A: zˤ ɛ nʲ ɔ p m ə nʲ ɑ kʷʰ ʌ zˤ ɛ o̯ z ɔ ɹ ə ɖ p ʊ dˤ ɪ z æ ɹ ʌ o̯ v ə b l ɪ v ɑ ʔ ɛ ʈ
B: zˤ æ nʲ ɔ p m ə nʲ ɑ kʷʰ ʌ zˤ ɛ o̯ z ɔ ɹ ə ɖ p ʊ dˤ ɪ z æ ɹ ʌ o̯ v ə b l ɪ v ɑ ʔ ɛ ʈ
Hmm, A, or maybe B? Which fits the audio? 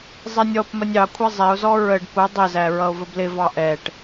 A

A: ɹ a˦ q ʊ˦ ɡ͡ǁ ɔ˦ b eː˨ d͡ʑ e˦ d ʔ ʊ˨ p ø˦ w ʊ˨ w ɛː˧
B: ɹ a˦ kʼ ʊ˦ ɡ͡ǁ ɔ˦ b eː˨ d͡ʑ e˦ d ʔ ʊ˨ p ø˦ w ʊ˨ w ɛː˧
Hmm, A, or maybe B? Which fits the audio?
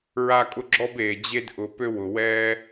B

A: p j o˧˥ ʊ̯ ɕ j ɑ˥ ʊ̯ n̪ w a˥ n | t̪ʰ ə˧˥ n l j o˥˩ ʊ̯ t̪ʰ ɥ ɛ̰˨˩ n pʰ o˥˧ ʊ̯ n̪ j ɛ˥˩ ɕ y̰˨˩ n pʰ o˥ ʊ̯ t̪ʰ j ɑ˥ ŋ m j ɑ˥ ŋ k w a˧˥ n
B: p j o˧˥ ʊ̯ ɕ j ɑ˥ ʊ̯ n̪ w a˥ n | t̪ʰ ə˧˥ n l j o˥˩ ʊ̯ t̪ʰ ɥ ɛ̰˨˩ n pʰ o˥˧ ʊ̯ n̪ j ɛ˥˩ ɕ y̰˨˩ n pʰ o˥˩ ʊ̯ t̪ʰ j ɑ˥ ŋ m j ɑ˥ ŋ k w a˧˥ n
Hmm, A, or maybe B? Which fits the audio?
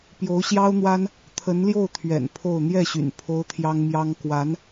A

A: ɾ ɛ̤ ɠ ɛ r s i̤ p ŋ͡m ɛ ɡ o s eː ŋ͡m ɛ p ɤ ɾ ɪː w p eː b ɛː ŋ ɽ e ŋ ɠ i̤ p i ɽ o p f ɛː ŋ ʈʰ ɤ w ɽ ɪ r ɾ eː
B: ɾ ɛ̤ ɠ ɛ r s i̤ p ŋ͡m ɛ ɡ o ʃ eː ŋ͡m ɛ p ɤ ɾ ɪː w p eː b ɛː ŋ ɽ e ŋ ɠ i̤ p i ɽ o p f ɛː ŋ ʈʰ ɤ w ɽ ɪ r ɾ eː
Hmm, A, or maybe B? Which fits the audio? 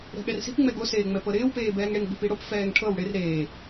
A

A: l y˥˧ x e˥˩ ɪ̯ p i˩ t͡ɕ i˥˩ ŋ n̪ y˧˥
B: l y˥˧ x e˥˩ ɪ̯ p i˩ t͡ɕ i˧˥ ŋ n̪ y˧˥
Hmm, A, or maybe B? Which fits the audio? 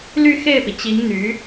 B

